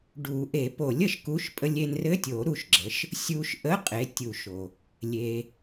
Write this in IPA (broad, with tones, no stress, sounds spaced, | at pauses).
ɖ u˨˩˦ ʔ e˨˩˦ p o˨˩˦ lʲ ə˩˥ ʃ k u˧˥˧ ʃ pʼ ə˧ lʲ e˧ n r ɘ˧˥˧ tʲ o˨˩˦ ɾ u˧ ʃ ɡ͡ǁ ə˩˥ ʃ | sʲ u˧ ʃ ʔ ə˧˥˧ qʼ e˩˥ tʲ u˨˩˦ ʃ o˩ | lʲ e˩